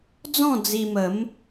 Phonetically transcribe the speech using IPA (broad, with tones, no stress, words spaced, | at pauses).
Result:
d͡zɔ̃˥˧ d͡zi˧mə˨˦m